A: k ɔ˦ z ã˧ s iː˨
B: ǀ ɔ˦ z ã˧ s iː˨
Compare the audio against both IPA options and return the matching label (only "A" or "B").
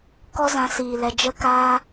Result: A